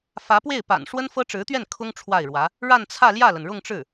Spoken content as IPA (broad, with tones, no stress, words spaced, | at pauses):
fä˧˥pwe˥˩ɪ̯pa̰˨˩n ʂwə˥nfɤ˥ʈ͡ʂɻ̩˧˥t̪ɥɛ˥˩n kʰʊ˥ŋ ʈ͡ʂʰwa˥˩ɪ̯ɻwä˧˥ | ɻa˥˧nt͡sʰä˥˧ ljä˥˩lə˩nɻʊ˥˧ŋʈ͡ʂɻ̩˥˩